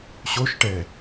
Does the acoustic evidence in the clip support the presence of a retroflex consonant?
yes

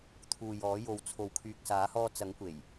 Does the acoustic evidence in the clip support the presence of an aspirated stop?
yes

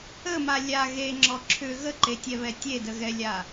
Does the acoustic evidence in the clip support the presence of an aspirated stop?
yes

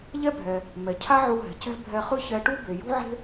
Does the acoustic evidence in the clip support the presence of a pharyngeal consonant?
yes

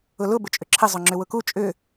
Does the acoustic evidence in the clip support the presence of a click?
yes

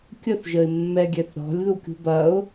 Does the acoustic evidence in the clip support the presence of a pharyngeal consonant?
no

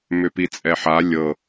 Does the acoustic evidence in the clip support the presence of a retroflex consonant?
no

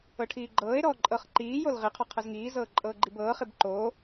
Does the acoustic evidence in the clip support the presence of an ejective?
yes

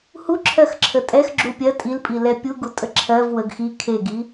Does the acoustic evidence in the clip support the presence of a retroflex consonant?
no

